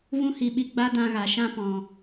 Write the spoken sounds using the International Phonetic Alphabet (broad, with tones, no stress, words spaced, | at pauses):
vũ˦ hi˧ɓi˧ ɡ͡ba˦dã˧ɣa˨ ʃã˧pɔ̃˨